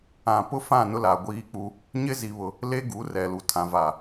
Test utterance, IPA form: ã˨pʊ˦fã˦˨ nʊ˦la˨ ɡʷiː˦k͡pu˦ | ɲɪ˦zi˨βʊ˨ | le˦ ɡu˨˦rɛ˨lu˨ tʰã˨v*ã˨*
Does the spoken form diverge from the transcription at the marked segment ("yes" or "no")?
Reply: yes